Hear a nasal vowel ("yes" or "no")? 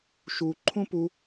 yes